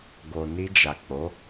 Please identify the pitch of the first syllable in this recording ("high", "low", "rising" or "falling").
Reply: low